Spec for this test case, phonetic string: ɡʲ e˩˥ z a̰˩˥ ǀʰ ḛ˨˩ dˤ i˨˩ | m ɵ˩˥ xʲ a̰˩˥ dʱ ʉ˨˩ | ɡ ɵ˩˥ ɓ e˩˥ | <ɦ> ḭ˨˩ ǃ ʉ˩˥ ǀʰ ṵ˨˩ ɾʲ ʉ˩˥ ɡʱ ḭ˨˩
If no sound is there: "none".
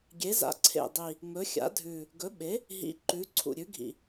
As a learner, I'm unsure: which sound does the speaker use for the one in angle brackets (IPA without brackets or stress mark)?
ɦ